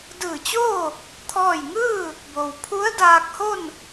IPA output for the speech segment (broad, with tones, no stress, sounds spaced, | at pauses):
d ɯː˧˩ t͡ɕ oː˥˨ | t̪ʰ ɔː˥˨ j ŋ ɯː˥˨ | b o˩ w pʰ u˧˥ ə̯ d aː˧ k̚ h o˥˨ n